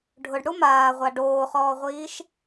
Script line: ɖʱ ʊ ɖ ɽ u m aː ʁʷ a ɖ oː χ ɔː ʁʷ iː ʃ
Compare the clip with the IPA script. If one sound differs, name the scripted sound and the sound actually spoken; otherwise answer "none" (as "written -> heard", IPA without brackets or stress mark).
none